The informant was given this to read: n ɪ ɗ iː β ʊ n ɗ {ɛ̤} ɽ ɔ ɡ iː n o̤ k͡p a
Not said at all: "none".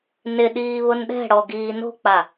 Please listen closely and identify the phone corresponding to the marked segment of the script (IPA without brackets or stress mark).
ɛ̤